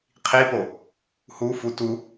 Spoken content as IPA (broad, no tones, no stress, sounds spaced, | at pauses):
qʰ i p o | h u f u t u